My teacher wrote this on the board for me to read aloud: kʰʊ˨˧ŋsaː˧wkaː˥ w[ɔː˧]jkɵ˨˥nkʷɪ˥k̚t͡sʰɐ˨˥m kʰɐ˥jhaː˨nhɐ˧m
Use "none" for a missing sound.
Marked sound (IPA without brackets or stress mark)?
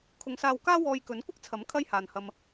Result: ɔː˧